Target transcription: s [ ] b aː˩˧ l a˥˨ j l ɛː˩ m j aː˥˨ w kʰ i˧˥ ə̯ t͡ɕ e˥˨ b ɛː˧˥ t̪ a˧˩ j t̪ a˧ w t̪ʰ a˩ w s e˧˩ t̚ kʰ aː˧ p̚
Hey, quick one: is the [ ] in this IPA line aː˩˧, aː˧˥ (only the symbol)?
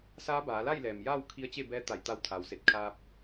aː˧˥